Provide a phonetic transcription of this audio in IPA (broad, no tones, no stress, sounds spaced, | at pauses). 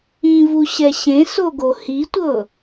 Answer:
ĩ v u ɕ ɛ ɕ ẽ s o ɡ o h i tʷ ɤ